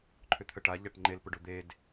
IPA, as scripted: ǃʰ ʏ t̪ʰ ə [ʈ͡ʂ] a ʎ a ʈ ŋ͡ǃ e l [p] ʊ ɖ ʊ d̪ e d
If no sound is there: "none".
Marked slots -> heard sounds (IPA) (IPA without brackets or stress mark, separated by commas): ʈ, p